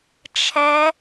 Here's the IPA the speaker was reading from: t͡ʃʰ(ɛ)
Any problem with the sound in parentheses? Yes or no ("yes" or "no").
no